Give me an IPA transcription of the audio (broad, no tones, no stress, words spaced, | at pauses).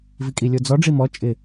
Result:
vikʼilʲod͡zɔ ɖ͡ʐimɔ t͡ʃʼɪ